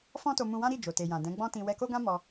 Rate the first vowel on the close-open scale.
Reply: mid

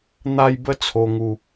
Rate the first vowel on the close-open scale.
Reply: open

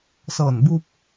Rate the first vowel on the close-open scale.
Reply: mid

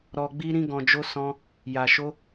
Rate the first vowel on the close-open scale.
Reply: mid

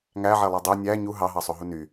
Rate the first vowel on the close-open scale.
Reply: open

